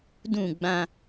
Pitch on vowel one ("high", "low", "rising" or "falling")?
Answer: falling